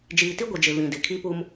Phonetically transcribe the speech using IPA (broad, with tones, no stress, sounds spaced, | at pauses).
d͡ʒ iː˨ t i˦ ɡʷ i˨ d͡ʒ ɪ˨ β ĩ˨ d ɪ˨ kʰ i˦ p u˦ m